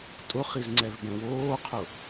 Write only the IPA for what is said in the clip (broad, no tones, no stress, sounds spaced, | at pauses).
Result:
tʼ ʊ χ i z ŋ͡ǀ ɛ v b ɛ̃ w oː qʰ ʊ